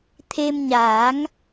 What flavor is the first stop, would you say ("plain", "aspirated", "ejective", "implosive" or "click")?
aspirated